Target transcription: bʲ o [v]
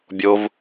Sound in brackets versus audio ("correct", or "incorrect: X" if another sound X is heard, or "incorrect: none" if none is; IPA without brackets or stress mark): correct